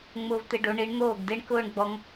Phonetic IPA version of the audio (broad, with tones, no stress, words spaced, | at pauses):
ŋ͡mʊː˧vt̪e˧ɖo˩˧ ɳi˩˧ɳ n̪oː˧˩ɡde˧ɳ kʊː˥˧ɳɡ͡bɔ˧ŋ